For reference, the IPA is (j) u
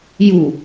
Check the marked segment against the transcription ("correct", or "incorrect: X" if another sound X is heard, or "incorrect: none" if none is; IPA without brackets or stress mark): correct